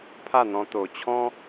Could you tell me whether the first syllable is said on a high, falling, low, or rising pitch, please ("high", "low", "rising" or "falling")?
falling